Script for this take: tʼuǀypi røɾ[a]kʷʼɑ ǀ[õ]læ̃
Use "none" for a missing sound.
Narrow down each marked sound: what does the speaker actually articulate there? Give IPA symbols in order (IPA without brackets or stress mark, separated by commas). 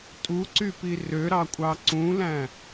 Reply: ɑ, ũ